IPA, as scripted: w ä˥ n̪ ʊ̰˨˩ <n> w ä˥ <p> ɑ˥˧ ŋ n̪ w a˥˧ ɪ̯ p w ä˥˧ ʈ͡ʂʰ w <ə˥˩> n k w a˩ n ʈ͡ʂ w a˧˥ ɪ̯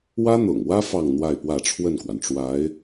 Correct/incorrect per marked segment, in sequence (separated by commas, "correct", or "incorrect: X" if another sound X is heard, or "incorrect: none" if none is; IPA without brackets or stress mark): incorrect: ŋ, incorrect: f, correct